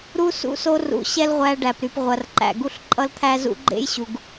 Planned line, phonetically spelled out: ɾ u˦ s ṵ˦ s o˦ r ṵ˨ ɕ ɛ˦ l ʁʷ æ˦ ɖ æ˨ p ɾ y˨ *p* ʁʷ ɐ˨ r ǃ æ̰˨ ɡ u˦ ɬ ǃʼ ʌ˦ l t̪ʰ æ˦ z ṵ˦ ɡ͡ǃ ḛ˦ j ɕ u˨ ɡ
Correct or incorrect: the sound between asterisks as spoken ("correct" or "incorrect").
correct